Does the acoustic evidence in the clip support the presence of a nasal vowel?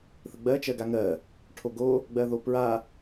no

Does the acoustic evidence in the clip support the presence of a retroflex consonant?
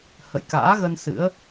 no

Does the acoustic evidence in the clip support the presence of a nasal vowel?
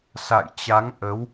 no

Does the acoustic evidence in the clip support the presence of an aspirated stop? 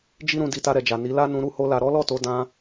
no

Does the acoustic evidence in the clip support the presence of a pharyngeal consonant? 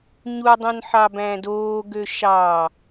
yes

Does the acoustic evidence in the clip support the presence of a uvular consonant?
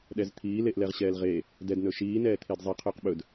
yes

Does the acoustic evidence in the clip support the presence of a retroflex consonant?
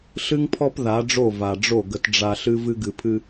yes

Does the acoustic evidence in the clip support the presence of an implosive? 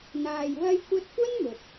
no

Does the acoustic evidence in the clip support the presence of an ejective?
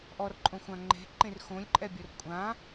yes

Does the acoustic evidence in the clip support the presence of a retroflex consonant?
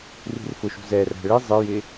yes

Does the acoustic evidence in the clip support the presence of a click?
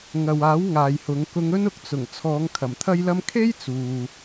no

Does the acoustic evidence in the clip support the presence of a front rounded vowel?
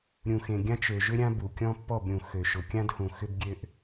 yes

